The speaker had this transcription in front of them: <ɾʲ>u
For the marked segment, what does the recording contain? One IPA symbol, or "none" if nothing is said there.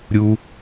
ɾʲ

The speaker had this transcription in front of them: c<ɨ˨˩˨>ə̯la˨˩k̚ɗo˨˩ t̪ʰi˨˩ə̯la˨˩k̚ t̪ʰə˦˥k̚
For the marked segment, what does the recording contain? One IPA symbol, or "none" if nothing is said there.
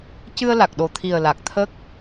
ɨ˧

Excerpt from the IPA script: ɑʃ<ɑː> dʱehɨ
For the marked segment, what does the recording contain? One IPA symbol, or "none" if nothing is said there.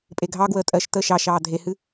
ɑː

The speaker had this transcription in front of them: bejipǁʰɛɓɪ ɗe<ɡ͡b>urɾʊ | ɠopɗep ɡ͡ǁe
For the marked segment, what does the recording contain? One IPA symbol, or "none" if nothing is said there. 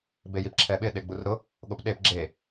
ɡ͡b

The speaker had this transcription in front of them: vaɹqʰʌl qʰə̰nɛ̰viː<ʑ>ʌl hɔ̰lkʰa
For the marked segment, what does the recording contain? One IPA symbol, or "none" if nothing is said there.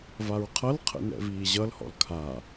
ʑ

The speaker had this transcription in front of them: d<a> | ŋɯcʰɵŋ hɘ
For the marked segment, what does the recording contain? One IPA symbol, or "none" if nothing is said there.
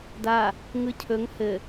a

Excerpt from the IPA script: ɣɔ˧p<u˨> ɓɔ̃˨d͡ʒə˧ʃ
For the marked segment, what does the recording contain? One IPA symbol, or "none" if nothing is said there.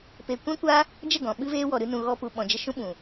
u˨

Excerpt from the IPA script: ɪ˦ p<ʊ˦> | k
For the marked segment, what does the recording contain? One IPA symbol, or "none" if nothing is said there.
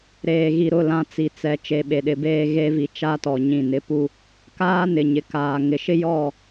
u˦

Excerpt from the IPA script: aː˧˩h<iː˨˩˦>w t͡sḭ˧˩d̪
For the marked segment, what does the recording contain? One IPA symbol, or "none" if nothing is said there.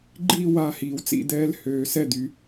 iː˨˩˦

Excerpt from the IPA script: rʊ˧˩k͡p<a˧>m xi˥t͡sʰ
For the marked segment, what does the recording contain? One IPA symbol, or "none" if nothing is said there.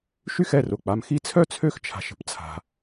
a˧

